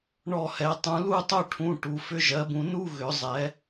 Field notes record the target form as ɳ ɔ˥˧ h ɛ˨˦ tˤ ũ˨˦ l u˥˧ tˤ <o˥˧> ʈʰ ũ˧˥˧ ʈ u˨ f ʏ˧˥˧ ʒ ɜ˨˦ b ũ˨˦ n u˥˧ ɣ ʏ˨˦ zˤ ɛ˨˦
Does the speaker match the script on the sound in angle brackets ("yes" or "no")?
yes